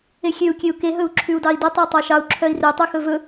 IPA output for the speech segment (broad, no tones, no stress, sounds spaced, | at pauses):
e xʲ ø u̯ kʲ ø u̯ k e ɦ ɵ u̯ ǁʰ ʉ u̯ d ɑ i̯ d i tˤ ɑ tˤ ɑ ʃ ɑ u̯ ǁʰ œ i̯ r ø tˤ ʉ x ɵ v ɵ